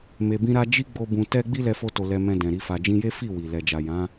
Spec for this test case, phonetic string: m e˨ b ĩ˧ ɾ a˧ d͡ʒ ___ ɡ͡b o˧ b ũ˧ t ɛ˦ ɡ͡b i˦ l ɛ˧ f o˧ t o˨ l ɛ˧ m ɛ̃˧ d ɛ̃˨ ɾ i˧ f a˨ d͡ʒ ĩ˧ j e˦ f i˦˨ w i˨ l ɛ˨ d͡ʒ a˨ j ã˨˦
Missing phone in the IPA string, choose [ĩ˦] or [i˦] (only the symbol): i˦